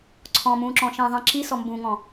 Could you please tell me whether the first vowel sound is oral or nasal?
nasal